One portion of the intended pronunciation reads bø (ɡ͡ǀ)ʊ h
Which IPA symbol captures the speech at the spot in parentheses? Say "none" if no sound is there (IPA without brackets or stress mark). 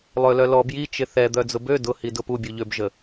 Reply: d